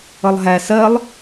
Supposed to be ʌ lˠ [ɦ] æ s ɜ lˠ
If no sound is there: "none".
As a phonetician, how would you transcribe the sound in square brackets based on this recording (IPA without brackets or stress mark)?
ɦ